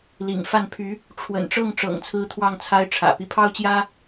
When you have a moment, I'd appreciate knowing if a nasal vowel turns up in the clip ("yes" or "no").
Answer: no